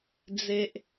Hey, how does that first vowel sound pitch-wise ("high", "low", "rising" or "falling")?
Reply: high